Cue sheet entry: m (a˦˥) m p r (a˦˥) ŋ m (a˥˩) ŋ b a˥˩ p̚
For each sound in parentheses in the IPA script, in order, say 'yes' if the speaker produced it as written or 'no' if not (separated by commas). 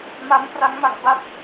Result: yes, yes, no